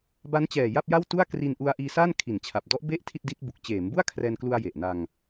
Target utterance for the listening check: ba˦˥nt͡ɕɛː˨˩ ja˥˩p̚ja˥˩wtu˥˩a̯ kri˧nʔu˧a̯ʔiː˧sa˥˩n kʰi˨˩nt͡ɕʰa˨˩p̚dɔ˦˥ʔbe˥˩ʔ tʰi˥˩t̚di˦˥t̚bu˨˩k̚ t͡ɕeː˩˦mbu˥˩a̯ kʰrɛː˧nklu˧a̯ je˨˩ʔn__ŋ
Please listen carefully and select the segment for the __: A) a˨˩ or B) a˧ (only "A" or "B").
B